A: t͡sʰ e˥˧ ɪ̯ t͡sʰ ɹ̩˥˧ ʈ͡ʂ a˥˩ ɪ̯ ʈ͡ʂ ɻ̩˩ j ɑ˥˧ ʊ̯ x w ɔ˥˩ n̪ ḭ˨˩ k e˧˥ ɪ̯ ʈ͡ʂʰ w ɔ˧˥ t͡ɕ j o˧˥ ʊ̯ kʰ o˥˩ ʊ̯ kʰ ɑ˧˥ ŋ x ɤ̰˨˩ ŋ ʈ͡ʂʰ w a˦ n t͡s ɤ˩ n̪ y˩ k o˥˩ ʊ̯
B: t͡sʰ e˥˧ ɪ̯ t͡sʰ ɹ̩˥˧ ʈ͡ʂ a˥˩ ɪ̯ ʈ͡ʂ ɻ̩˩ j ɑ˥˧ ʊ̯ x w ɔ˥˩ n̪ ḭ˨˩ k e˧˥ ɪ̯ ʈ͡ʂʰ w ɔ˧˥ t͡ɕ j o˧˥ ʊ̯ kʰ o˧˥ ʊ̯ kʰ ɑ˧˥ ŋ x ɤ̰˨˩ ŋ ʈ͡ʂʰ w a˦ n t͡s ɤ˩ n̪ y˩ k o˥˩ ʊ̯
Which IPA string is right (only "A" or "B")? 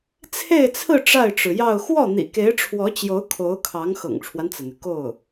B